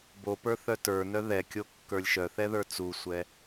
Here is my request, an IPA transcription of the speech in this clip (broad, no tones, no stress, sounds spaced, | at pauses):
b o p ə˞ θ œ t ə˞ n œ ð ɛ kʲ o kː ə˞ lʲ ʃ œ θ ɛ ð ə˞ t͡s u sʷ ɛ